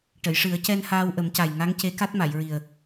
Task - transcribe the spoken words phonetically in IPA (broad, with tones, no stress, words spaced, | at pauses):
ʈə˨˩˨jʂɨ˨˩˦ə̯cɛ˧n haː˧wʔə˨˩˦mca˨˩jŋa˧˥ŋ ce˧˥ka˦˥t̚ma˨˩˨jɹi˨˩ə̯